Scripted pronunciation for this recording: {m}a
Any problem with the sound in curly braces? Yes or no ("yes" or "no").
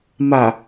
no